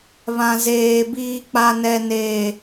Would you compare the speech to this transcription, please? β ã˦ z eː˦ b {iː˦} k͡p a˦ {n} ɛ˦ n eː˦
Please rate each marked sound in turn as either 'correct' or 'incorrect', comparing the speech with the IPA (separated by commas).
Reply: correct, correct